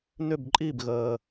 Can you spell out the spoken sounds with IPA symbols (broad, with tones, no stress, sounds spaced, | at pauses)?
n ʏ˦˨ b ǃʼ i˦˨ b ɣ əː˨